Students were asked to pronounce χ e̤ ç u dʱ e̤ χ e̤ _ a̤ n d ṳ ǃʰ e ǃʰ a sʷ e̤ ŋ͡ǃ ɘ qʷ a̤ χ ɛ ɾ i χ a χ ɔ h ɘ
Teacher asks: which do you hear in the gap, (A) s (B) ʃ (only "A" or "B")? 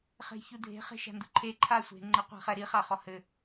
B